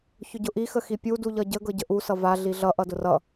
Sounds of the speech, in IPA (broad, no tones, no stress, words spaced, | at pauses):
çʊɟʊʔi xəxipʲu duʎʌɟə ɡɤɟəʔu sʌva ɮiɮʌ ʔʌdʊrʌ